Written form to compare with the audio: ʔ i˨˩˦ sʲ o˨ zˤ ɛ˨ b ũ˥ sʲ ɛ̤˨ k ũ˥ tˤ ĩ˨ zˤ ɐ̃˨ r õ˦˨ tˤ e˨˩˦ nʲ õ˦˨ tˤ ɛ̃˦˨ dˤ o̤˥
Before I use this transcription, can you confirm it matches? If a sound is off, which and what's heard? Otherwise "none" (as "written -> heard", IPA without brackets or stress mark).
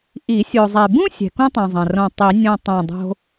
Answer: e˨˩˦ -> i˨˩˦